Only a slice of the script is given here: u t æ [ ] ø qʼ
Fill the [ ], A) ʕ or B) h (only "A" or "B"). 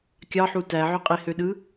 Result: A